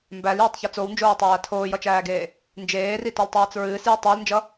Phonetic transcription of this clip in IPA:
m b æ l j o tˤ ç ʌ t͡s o w n d͡ʒ oː tˤ æː tʰ oː j ʌ t͡ʃ æː ɡ eː | n d͡ʒ eː r i t ɔ l tˤ æː t͡s ɹ ɨː s j e tˤ æ l n d͡ʒ ʌ

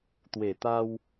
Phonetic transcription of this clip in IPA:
t̪ w e˨˩ t̪ a˧ w

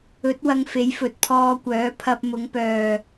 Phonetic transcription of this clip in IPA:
ɵ˨˥ t̚ w ɐ˧ ŋ f e˨˥ j f ɵ˨ t̚ pʰ ɔː˧ kʷ œː˨˥ pʰ ɐ˧ p̚ m ʊ˨˧ ŋ p œː˨

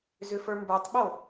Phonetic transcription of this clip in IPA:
z ʏ f ə˞ m b ə˞ tˤ ɓ o

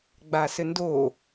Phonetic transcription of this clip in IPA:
ɡ͡b a s ɘ n d o

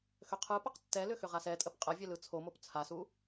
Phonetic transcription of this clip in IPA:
x ø qʰ ɯ p ə q tː ɛ l ʏ x ʏ ʁ a s ɛ tʼ ə p qʼ ɜ vʲ ɛ l ɯ t͡sʰ o m o p t͡sʰ a s u

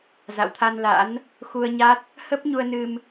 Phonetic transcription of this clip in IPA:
z a̰˧˨ w t̪ʰ a˧ n l a̰˧˥ n | x u˧ ə̯ ɲ a˦˥ t̚ | h ə˦˥ p̚ ɲ u˧ ə̯ n ɨ˧ m

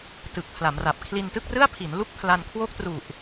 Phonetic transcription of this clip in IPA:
t ɯ˨˩ k̚ pʰ l a˩˦ m r a˨˩ p̚ kʰ l i˧ n t ɯ˥˩ k̚ r ɯ˥˩ a̯ pʰ i˩˦ n l u˥˩ k̚ pʰ l a˧ n kʰ w o˥˩ k̚ t r u˨˩ ʔ

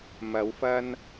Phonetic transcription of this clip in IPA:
m ɐ˨˧ w f ɐ˧ n

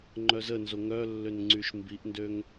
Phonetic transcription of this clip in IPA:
ŋ͡ǃ œ z ə n z o ŋ œ lː ø n ŋ͡ǀ y ʃ m b i ʔ n d ø ŋ

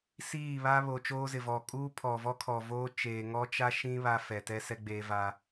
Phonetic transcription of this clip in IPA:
s iː˦˨ β a˦ β o˨ t͡ʃ oː˦ z ɪ˨ v ɔ˨ kʼ uː˦ pʰ ɔ˨ v ɔ˦ kʰ ɔ˨ v oː˦ t͡ʃ eː˨ ŋ ɔ˦ t͡ʃ a˦ ʃ ĩ˦ β a˦ f ɛ˨ t ɛ˦ s ɛ˦ ɡ͡b eː˦ v a˦

